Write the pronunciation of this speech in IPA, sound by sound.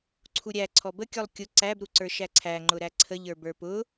ǀʰuɾʲæ ǀʰɔbə kʲɔlˠkʲʊ ǀæb ɾuǀə˞ʃæǀʰæ ŋ͡ǃʊɾæǀʰə ʎə˞bə˞pʊ

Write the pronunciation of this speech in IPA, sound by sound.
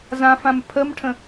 zãfãm pʰəmʈʰə̃

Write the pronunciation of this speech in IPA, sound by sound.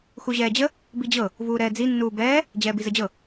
xuʑɛːd͡ʑə | bid͡ʑɤ | vuːɾɛːd͡zi nːuːbɛː | d͡ʑɛːbizəd͡ʑɤ

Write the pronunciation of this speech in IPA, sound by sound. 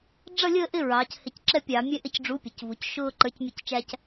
ɖ͡ʐʌ˦˨lʲəː˦˨ʔɪ˦˨ ɹɑː˩˧chɪ˧˩˧c ǁɛ˦pʲɑ˧˩˧mʲɛ˦ ʔɪ˦˨cɖ͡ʐu˨˥pʲʌ˩˧c vu˩˧cʃʊː˦ ǃə˞˨˥cmʲʌ˦˨ct͡ʃæ˦c

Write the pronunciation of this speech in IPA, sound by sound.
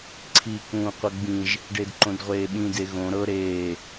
ǀʰi kũːqʷɤɡ͡bĩʒ | ɖedǃõdʁʷeːɓĩ deɣõ ɾɤ ɾeː

